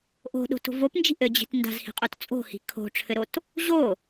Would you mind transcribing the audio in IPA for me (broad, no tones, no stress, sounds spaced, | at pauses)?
ʔ o̤ ɗ o̤ t o̤ v o p n d͡ʒ i̤ ʔ ɘ d͡ʑ i̤ t n d a̤ z h i̤ qʼ o t t͡sʼ o̤ h i̤ kʰ o̤ ʈ͡ʂʰ ɘ ɾ o t | ʑ o